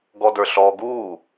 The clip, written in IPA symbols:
ɡɔdə˞ɬɔːɡuː

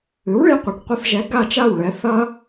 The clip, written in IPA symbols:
ɨ˩˥wɭi˧qʷe˩ʈ qʷɐ˧θʒɛ˩˥ ɡa˥˩t͡ʃa˥˩wɭɛ˩˥ θɐ˥

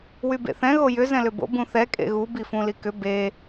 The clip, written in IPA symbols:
wybḛθɛ̃ ɣojʏ zɛ̃lʏbo̰ bũθɛ kʼḛɣu bifũlikʏ be

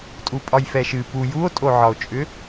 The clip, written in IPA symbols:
tʼupʼɒjfɛʃɨ pu juo̯tʼoʕɒo̯t͡ʃʼʏ

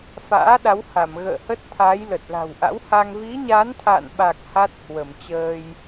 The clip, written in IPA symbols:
fa̰ː˧˥ ɗa˨˦wha˧˩m ɣə̰ː˧˨hə˦˥t̚ t̪ʰa˨˦jlə˨˩t̚ la̤˨˩wʔa̰˧˥wha˧ŋ vi˨˦ɲa˨˦nt̪ʰa̰ː˧˨nɓa˨˩k̚ ha˦˥t̚hwə˧˩mt͡ɕəː˧j

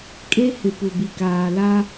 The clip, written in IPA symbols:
kʼe˦hɪ˨pu˨ bi˨kaː˨la˦

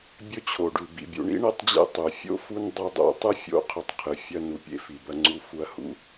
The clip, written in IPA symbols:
bʲɵ˦t͡ɕʰo˩ɖʉ˩ bḭ˩bʲṵ˨ɳḭ˥ ɳe˦tˤd͡ʑḛ˦ tˤʉ˩fʲo̰˥ fu˦n dˤɵ˦dˤṵ˦ tˤɨ˥fʲo̰˦ qʰɵ˨tˤqʰɨ˩ fʲɐ˦ nu˩pʲḛ˥fi˩bɐ˦ ŋ͡ǀu˦fu˦ɐ̯ hṵ˦

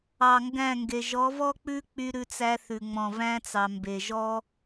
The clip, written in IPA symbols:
ɑ˨ŋɡæ̃˦˨ŋɡe˨ ʒɔ˨˦vɔ˦k͡pʉ˦ k͡py˦ɾʉ˦t͡sæ˦θʉ˨ ŋ͡mɔ̃˨væ̃˦t͡sɑ˨ mbe˨ʒɔ˦

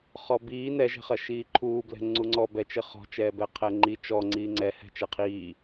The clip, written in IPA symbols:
χɔbiː nɛʒɛ̤χɐ ʃiːǃʰuːblɛ̤ ŋ͡ǀuŋ͡ǀɔ bɛt͡ʃɘ χɔ̤t͡ʃɛːbɛ qʰɛŋ͡ǃi t͡ʃɔ ŋ͡ǀiːŋ͡ǀɛhɛ̤ t͡ʃɛqʰiː

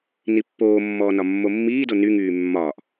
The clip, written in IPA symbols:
nipːoːmːɔː nɒmːomːiːdo nyŋyː mːɒːʔ

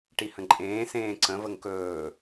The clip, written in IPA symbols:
ʈihə̃ǃʼẽː sẽːǀə̃vəŋ kɵː

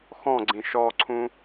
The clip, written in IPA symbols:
xɔ̃ɡ͡ǀĩ ʃɔǀʰũ

